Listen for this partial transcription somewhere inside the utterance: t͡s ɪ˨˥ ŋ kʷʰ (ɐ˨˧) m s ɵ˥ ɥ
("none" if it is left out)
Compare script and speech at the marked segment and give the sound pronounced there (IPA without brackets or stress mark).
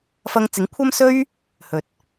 ɐ˥